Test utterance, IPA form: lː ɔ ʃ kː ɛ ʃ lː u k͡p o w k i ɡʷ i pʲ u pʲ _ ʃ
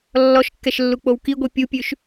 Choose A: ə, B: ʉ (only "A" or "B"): B